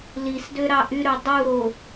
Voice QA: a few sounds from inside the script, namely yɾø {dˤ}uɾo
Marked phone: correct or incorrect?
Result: correct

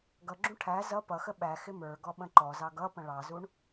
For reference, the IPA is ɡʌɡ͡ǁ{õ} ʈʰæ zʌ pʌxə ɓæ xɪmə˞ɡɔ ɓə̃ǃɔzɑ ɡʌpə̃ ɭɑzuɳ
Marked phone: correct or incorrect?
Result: incorrect: ũ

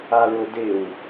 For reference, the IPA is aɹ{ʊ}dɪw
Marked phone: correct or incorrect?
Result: correct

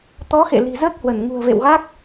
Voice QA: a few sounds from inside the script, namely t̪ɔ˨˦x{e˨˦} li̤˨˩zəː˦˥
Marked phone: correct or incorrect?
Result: incorrect: ḛ˧˨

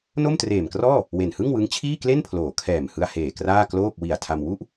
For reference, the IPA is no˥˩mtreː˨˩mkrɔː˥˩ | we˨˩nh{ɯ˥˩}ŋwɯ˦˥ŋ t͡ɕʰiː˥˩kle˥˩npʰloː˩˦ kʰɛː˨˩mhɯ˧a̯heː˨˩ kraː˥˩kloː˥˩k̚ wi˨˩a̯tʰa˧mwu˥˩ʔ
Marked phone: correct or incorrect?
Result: correct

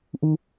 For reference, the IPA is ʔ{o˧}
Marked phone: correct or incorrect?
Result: incorrect: u˧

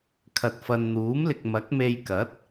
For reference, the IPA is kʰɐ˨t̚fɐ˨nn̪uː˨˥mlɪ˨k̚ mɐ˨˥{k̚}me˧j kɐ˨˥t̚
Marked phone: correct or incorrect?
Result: correct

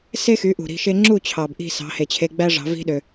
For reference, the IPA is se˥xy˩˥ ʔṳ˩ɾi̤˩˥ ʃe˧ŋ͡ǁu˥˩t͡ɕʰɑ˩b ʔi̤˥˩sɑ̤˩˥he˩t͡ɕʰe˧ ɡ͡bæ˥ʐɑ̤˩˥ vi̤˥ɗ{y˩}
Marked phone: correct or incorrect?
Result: incorrect: ø˩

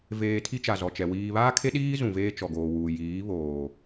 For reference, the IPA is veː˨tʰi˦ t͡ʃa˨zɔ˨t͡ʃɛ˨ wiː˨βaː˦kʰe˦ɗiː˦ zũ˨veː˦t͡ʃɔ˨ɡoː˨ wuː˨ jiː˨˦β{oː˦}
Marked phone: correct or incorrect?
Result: incorrect: oː˨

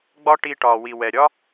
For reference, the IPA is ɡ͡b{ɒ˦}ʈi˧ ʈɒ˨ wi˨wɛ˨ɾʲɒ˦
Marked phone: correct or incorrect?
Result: correct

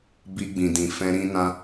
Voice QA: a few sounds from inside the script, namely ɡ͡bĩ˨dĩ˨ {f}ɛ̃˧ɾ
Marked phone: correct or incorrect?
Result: correct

